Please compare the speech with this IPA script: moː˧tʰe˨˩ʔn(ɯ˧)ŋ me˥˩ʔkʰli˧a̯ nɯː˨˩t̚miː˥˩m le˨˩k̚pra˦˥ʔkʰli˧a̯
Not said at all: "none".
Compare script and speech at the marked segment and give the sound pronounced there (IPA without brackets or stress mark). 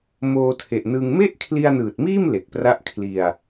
ɯ˧